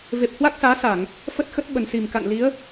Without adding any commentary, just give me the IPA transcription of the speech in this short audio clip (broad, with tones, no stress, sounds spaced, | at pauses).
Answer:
v e˨˩ p̚ h w a˦˥ k̚ s aː˨˦ s a˧˩˨ ŋ | f ə˦˥ t̚ x ə˦˥ t̚ ɓ ə˨˩ n s i˨˩ m k a̰˧˨ n l i˨˦ ə̯